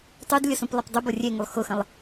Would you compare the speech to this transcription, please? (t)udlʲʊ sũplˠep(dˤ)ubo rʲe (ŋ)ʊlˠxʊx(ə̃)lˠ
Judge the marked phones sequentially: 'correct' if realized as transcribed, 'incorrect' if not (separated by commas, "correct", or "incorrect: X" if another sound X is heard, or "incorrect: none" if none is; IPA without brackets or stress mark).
incorrect: tˤ, correct, correct, correct